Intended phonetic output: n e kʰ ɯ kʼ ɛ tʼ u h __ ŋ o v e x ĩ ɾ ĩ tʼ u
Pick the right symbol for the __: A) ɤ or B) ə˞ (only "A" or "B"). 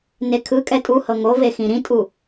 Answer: A